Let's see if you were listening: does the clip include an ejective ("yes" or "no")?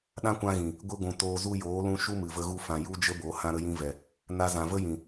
no